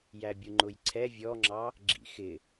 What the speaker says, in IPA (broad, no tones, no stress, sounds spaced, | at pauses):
j æ bʲ u ŋ͡ǃ ʊ j ǀʰ ɛ vʲ ɔ ŋ͡ǁ ɑ | ɡ͡ǁ ḭ x ɪ